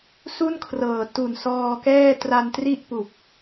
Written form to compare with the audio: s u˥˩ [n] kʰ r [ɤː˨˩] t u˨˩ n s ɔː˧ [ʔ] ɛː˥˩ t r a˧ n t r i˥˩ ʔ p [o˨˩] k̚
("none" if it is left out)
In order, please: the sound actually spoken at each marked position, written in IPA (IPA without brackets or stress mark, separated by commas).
n, ɤː˨˩, k, u˨˩